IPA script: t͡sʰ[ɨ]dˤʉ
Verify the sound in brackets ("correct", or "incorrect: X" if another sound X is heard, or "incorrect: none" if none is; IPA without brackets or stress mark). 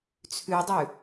incorrect: ʉ